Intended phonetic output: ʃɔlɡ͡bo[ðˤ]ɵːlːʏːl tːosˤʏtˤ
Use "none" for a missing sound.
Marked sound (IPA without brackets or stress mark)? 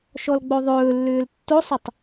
ðˤ